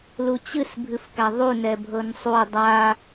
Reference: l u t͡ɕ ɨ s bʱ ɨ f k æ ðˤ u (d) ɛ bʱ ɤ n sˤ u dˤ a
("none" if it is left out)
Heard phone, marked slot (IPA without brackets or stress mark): n